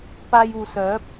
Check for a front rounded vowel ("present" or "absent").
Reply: present